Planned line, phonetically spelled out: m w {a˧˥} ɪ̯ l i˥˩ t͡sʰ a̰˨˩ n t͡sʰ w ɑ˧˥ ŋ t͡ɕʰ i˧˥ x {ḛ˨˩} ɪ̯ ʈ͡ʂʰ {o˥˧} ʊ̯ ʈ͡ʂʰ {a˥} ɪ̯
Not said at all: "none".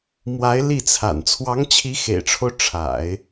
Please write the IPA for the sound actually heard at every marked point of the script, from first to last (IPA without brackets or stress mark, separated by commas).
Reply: a˧˥, ḛ˨˩, o˦, a̰˨˩˦